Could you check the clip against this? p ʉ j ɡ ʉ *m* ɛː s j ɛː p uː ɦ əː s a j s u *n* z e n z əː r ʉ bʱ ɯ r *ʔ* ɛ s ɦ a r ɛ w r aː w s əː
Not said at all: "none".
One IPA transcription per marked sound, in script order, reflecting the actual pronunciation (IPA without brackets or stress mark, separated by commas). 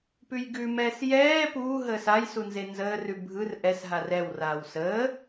m, n, ʔ